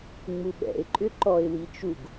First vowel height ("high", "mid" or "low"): high